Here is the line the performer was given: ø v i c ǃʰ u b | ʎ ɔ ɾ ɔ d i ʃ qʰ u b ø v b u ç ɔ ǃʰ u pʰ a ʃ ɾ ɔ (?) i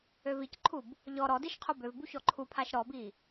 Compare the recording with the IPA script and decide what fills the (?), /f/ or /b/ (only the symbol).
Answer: b